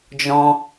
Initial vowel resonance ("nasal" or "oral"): nasal